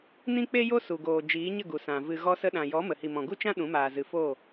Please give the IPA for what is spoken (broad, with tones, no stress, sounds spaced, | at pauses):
n ĩ˦ k͡p e˦ j o˦ s u˨ ɡ oː˨ d͡ʒ iː˨˦ ɲ ə˦˨ ɡ u˨ s ã˨ v ɨ˨ ɣ ɔ˧ s ə˧ ɗ ã˨ j ɔ˨˦ m ə˨ h i˨ m ɔ̃˨ ɡ u˦ t͡ʃ ã˦ ɗ ũ˨˦ m aː˨ z ɨ˨ f oː˦˨